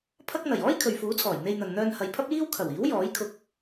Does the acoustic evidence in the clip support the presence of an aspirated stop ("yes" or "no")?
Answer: yes